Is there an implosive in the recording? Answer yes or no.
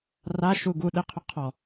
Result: yes